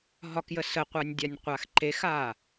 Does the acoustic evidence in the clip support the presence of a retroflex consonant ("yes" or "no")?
no